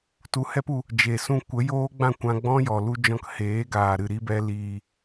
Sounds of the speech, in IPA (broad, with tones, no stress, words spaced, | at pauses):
tu˧hɛ˦pu˧ | d͡ʒe˨sũ˧ kʷə˨˦ joː˦ɡ͡bã˦˨ kʷã˧ɡ͡bɔ̃˦jɔ˨lu˧ d͡ʒɔ̃˧kheː˨˦ ɡaː˨ɾɨ˨ɾi˧bɛ˧ liː˨